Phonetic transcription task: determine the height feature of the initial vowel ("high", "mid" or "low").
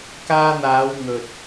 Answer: low